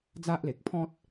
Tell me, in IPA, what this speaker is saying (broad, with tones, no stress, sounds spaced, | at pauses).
d͡z a˦ ʔ l e˨ k̚ pʰ ɔ̃˦ t̚